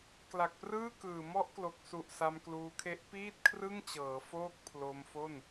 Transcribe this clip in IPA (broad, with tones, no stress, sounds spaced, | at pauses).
k l a˨˩ k̚ p r ɯː˥˩ k ɯː˨˩ m ɔ˦˥ ʔ k l o˨˩ k̚ s u˨˩ ʔ s a˧ m k l uː˧ kʰ e˦˥ ʔ p iː˥˩ t̚ kʰ r ɯ˥˩ ŋ t͡ɕ ɤː˩˦ f oː˥˩ k̚ pʰ l o˧ m f o˥˩ n